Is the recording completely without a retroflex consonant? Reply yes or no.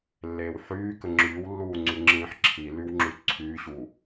yes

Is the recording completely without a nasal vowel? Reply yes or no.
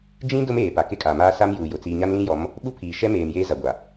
no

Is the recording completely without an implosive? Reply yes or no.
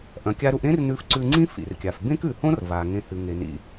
yes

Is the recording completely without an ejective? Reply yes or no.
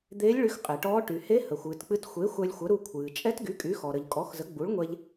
no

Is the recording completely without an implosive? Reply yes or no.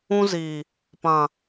yes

